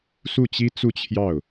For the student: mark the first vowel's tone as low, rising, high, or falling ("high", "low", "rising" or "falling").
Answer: falling